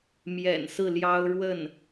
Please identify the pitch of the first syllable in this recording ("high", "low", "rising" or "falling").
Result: low